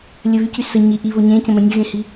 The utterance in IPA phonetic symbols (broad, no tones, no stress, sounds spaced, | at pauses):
lʲ ə β y c y s ə ɲ i ʔ i β o ɲ ẽ c ə̃ m ə̃ nʲ ə ɣ ẽ h i